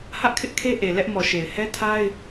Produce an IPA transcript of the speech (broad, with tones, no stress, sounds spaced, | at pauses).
h ä˦ ʔ kʰ ɪ˦ ʔ kʰ e˦ ʔ e˨ l ɛ˦ ʔ m ɔ˨ ʃ e˨ ɪ̯ h ɛ˦ tʰ a˦ ɪ̯